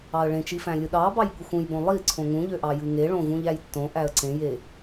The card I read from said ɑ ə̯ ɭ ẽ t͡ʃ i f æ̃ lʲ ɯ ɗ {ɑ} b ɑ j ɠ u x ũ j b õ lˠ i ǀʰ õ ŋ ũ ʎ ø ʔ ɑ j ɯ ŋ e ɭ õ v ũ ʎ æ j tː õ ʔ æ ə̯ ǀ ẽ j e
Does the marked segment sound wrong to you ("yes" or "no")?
no